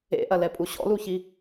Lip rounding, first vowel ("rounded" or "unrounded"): unrounded